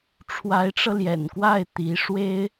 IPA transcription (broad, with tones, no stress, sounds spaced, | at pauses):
ʈ͡ʂʰ w a˧˥ ɪ̯ ʈ͡ʂ ɤ˧ l j ɛ̰˨˩ n k w a˥˩ ɪ̯ t̪ i˧˥ ʂ w e˥ ɪ̯